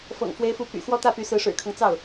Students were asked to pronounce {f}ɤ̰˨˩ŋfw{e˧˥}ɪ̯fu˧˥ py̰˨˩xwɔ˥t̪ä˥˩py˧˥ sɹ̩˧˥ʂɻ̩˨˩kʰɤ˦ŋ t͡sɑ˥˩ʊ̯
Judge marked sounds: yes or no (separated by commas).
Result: yes, yes